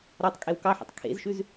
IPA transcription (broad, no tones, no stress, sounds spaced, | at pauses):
ɾ ɒ tˤ kʼ e w k ɑ ħ ḭ tˤ kʰ ḛ z ʃ ʉ z